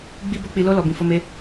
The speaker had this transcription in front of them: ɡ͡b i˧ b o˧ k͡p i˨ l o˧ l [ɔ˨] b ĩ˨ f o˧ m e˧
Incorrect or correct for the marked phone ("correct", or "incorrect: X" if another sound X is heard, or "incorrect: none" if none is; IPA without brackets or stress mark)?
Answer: correct